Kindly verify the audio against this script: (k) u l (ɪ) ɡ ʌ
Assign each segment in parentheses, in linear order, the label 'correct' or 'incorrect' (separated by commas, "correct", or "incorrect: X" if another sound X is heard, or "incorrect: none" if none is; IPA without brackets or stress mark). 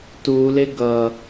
incorrect: t, correct